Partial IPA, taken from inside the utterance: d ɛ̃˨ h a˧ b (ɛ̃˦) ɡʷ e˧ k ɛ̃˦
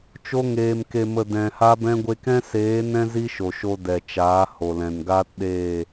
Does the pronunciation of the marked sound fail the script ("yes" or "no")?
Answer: no